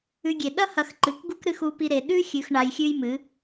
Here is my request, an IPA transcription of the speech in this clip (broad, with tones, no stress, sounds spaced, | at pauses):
ʉ˧ ɡʲ e˨ ɗ ɐ˦ h ɐ˧ x ǃ ɨ˨˦ k ɡ u˦ k ɾ ɨ˦ x u˦ p i˦ ɾ e˧ ɗ ʉ˦ xʲ ʉ˧ x ɳ a˧ j xʲ ʉ˦ j m ɨ˨˦